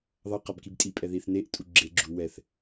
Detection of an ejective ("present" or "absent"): present